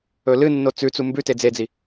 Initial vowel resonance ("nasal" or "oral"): oral